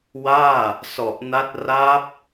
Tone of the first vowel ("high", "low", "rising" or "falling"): falling